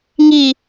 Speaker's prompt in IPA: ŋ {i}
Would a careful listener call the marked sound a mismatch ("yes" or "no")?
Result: no